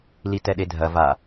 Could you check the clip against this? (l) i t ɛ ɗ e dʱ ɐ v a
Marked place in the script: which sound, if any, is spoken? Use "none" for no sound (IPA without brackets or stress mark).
l